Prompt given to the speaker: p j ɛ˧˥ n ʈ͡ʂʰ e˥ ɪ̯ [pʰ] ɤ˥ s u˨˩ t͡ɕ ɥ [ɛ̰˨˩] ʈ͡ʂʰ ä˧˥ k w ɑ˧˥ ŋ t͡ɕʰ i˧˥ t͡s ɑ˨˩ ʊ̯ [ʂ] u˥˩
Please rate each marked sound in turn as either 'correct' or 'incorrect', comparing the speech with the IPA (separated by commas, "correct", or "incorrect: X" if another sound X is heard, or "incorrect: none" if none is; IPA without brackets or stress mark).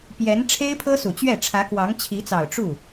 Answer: correct, incorrect: ɛ˥˩, incorrect: ʈ͡ʂ